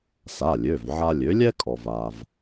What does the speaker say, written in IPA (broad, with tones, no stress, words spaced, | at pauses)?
sa˩˧˩lʲø˩˧˩v ʕa˧lʲø˩˥ lʲɛ˥kʼɔ˩va˩v